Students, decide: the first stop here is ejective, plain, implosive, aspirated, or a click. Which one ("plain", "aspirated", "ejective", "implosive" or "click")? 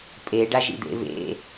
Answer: ejective